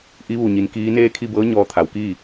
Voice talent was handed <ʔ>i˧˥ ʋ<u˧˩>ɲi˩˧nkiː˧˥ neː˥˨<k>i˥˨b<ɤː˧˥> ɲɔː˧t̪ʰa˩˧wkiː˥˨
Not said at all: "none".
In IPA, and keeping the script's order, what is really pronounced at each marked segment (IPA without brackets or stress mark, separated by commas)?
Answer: ʔ, u˧˩, kʰ, ɤː˧˥